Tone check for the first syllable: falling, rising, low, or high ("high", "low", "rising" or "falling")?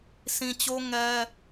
low